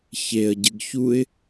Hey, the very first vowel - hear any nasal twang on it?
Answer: no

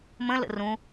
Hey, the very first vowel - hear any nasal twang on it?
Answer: yes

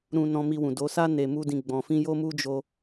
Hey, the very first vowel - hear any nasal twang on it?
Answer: yes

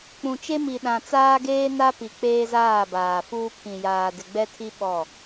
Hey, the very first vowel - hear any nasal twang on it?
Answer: yes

